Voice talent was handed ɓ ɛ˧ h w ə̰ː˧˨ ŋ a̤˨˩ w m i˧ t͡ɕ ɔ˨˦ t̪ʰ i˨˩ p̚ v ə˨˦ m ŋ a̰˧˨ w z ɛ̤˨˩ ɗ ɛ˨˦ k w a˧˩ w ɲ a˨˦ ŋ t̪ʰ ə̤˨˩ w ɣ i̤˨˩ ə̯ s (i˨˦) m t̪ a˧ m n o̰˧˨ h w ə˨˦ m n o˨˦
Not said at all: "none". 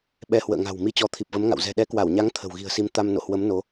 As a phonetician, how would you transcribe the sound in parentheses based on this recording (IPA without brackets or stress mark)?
i˨˦